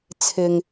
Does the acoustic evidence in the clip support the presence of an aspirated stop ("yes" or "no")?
yes